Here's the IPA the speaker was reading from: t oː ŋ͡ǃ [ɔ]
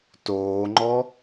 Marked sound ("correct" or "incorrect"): correct